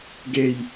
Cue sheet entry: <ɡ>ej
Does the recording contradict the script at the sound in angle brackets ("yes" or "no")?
no